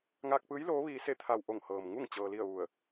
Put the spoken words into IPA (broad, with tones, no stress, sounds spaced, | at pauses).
ŋ aː˧ k̚ p ɯː˧˥ j l oː˧˥ ʋ iː˧ s e˥˨ t̪ʰ a˧˩ w ʔ o˧˩ ŋ h ɤː˩ m ŋ u˥˨ ŋ t͡ɕ ɤː˧ l i˥˨ ə̯ ʋ u˧˩ ə̯